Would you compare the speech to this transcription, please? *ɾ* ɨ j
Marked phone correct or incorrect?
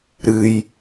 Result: correct